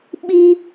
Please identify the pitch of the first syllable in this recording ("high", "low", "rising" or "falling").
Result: high